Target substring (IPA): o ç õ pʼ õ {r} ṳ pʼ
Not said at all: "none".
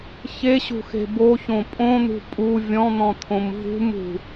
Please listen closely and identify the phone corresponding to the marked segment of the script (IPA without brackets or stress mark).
n̪